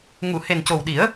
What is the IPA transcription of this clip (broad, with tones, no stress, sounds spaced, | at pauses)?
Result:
ŋ u˨˩˨ h e˨˩ n c o˨˩ w ɗ i˨˩˦ ə̯